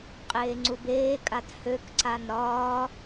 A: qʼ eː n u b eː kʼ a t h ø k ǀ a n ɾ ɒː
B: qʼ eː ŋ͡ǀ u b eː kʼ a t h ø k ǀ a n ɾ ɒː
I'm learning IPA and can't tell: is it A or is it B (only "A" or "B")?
B